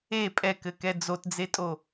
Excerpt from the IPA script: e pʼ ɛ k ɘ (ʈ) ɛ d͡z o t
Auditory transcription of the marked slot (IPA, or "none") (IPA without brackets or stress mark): k